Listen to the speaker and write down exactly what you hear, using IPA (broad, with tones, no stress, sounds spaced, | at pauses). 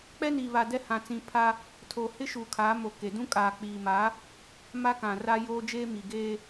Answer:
k͡p ɛ˦ n iː˨ β a˨ d ɛ˦ h ã˨ t͡s ĩ˨ pʰ a˦ | tʰ o˨ h ɪ˦ ʃ uː˨ kʰ aː˨˦ m o˨ k e˨ d ũ˦ kʼ aː˨ k͡p iː˨ m aː˨˦ | m a˦ k ã˨ r a˦ j oː˦ d͡ʒ eː˦ m i˨ ɡ eː˦